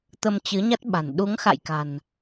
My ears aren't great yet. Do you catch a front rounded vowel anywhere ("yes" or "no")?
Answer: no